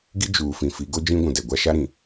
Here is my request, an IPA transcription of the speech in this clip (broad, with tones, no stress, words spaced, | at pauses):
ɡi˦ d͡ʒuː˨ fĩ˨fi˨˦ ɡo˦d͡ʒĩ˦ ɡʷũ˨dɛ˨ɡʷa˦ ʃa˦ɾĩ˨